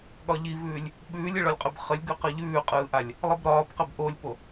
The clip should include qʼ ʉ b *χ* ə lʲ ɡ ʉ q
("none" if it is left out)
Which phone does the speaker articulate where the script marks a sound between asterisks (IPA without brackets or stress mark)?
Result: χ